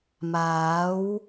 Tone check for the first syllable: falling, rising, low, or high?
rising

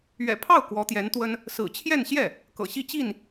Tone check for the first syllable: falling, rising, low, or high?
low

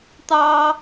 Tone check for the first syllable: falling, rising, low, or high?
high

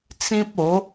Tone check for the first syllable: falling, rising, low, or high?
high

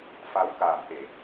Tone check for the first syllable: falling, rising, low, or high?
rising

